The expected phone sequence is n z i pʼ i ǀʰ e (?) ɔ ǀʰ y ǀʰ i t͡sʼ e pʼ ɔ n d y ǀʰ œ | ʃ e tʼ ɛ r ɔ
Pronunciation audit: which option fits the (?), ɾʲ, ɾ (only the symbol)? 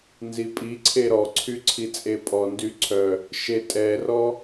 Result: ɾ